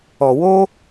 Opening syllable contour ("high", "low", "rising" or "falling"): low